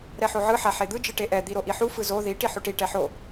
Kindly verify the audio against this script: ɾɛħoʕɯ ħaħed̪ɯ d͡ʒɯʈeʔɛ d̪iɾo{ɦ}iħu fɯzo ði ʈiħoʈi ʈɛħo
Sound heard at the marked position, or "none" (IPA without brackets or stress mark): ʔ